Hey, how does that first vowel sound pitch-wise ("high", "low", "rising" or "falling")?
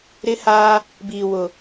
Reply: high